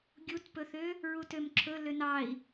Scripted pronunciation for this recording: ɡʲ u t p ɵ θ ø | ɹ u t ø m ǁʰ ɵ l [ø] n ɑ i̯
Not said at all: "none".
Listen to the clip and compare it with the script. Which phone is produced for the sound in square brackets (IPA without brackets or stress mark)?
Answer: ø